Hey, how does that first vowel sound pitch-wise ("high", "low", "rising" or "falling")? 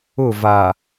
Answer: falling